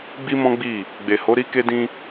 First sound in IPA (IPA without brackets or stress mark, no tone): ɡ͡b